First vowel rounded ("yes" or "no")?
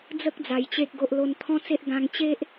no